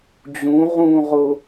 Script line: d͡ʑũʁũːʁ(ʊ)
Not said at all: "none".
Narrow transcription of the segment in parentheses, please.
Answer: ʊ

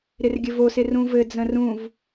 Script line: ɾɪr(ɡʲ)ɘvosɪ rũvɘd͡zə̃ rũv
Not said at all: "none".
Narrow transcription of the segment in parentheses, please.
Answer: ɡʲ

